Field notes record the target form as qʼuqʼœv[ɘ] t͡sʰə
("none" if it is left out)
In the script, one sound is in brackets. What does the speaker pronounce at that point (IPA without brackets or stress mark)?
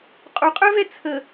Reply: ɛ